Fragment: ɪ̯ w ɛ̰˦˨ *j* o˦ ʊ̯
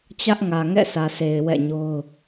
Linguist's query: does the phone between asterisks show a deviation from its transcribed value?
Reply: yes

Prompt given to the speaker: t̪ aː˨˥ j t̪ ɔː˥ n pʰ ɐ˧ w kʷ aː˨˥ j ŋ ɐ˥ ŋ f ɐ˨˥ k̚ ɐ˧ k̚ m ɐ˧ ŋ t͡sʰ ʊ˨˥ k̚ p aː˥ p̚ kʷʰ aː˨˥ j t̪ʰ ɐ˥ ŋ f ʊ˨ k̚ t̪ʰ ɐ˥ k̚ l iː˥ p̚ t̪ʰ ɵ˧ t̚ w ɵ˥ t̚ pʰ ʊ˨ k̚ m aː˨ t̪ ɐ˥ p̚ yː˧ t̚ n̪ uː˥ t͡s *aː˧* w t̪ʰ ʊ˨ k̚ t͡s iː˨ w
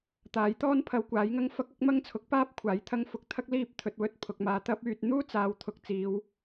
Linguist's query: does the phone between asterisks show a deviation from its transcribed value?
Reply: yes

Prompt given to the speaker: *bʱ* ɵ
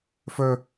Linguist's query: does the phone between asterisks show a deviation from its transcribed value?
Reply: yes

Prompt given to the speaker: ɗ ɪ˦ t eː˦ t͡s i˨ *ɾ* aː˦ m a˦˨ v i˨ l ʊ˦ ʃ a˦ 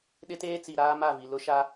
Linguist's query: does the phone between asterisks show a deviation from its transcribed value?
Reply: no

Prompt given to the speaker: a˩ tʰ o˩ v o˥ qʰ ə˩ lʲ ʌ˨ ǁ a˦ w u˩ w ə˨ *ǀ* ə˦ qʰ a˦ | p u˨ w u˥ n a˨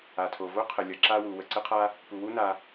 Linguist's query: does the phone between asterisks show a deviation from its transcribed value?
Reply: no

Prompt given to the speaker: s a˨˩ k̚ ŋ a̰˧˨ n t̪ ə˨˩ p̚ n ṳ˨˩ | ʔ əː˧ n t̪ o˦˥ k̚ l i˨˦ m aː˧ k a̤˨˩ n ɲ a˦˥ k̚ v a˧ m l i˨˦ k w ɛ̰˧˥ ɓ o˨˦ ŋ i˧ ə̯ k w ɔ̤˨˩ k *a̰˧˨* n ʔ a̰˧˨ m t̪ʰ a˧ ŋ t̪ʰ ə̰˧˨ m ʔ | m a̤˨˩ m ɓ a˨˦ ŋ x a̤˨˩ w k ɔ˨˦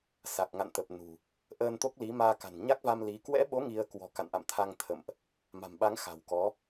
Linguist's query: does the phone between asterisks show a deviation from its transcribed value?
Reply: no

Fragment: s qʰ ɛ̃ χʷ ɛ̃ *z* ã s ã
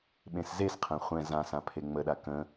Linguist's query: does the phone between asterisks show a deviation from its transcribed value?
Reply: no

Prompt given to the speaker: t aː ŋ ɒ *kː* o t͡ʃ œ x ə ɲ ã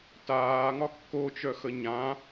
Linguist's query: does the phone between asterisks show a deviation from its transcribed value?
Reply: no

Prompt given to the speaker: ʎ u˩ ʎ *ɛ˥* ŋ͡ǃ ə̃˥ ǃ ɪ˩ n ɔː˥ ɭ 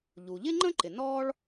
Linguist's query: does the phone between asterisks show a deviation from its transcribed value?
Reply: yes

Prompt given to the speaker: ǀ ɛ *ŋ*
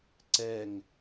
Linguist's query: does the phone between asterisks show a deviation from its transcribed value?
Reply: no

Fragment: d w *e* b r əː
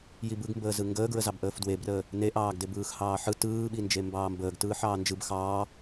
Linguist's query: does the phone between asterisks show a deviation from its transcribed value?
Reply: no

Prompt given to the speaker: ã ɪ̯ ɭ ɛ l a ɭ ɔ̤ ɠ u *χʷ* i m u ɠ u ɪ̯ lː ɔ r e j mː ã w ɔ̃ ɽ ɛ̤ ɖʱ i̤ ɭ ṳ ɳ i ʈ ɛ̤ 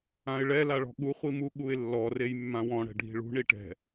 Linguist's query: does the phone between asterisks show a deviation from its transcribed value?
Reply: no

